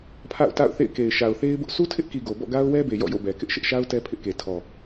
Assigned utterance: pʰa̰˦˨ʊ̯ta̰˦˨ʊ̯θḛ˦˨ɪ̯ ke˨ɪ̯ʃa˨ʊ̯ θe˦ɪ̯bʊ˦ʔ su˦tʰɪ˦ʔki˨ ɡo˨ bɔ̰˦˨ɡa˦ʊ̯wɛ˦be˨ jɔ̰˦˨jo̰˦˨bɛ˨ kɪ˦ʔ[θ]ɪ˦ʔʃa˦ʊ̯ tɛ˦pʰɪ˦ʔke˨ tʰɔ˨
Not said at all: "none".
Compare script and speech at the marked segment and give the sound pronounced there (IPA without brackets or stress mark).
ʃ